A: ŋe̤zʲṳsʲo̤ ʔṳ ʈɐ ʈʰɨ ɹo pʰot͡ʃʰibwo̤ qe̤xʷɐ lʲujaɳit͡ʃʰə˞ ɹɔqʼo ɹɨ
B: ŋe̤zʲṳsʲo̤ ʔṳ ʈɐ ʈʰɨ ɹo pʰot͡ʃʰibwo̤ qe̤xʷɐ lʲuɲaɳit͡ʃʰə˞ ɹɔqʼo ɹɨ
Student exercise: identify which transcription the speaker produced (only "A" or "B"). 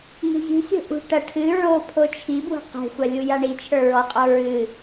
A